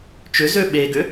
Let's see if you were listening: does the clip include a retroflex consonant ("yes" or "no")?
no